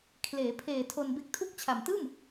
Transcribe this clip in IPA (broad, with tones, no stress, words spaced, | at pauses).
kʰleː˩˦pʰeː˨˩ tʰo˧nbe˦˥k̚tʰu˥˩k̚ t͡ɕʰa˨˩mtɯː˥˩m